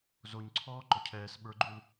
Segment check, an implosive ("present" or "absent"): present